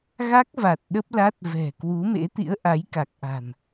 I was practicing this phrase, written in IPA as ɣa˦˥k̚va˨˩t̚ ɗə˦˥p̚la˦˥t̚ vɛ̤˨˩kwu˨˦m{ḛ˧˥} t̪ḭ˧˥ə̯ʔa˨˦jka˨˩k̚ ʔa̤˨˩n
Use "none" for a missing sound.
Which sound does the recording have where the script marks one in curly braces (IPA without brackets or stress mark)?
ḛ˧˥